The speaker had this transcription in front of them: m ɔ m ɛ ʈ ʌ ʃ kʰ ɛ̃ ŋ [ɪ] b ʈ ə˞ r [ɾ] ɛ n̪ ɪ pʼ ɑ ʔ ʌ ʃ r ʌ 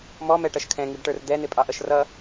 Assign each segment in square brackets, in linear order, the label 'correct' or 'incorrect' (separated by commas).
incorrect, incorrect